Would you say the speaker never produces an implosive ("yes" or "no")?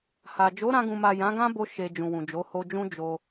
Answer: yes